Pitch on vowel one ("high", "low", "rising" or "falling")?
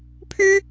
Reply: high